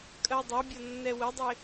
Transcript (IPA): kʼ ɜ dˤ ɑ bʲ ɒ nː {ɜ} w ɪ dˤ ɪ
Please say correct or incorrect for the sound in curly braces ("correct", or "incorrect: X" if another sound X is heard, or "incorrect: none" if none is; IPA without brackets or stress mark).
incorrect: ɛ